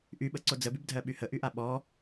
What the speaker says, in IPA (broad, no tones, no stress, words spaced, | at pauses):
ʔyɓəǀo d͡zəbybdʱɜɓy həʔyʔa ɓɔ